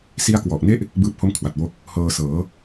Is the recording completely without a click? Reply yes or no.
yes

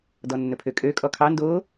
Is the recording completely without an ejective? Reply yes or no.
no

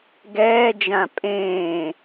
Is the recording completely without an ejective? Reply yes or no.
no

